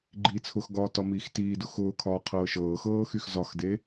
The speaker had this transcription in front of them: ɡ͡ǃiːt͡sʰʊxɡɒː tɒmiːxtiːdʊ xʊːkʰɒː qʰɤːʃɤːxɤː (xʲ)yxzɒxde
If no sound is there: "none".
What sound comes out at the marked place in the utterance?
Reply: x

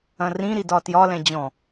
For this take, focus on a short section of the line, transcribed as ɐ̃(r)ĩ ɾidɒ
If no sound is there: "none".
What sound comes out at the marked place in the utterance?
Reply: r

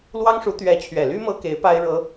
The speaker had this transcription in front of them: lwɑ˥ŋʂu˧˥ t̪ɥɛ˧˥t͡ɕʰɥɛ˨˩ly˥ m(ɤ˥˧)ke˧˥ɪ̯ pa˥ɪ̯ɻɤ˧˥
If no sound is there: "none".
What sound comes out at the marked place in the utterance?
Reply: ɤ˥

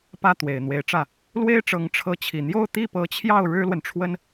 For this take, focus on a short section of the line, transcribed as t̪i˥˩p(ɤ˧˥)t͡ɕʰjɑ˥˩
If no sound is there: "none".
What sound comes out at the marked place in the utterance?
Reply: ɤ˧˥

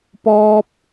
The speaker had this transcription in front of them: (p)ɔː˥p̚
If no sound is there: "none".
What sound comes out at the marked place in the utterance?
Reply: p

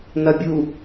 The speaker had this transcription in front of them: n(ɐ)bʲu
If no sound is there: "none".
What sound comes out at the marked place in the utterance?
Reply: ɐ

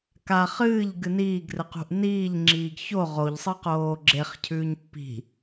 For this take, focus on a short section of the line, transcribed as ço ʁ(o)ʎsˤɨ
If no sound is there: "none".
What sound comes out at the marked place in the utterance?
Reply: o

